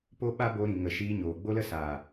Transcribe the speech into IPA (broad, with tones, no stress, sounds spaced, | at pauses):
p o˦ ɓ a˦ b o˧ ɾ ĩ˨ ŋ ə˨ ʃ iː˧ ɲ oː˨ ɡ͡b o˦ l ə˦ s aː˨